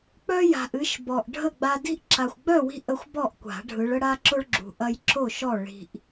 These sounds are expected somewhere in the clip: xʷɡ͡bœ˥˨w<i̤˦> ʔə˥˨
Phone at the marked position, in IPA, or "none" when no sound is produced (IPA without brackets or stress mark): i̤˦